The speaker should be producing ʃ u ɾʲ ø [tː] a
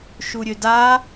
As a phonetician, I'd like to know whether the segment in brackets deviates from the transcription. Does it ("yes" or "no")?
yes